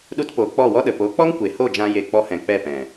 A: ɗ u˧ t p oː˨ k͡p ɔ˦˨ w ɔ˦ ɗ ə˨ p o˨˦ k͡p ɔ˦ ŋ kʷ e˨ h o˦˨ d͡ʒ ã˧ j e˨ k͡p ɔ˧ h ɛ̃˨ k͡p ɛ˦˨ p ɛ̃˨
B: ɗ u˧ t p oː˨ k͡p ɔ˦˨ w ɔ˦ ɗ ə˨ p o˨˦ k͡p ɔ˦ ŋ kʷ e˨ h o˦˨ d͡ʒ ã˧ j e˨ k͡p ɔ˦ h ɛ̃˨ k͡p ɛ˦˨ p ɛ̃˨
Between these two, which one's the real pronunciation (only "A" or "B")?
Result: A